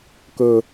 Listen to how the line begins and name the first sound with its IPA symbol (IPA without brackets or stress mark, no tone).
k